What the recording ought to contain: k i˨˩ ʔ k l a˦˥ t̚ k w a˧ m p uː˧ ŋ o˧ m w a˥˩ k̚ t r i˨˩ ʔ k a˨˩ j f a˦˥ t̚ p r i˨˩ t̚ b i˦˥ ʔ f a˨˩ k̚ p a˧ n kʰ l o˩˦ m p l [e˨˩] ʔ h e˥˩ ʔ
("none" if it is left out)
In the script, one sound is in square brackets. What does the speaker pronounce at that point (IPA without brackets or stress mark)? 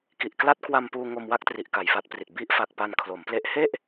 e˦˥